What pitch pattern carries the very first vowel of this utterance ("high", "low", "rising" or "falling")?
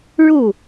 falling